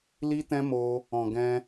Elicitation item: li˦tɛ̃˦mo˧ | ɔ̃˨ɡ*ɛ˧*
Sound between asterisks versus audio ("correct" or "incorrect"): incorrect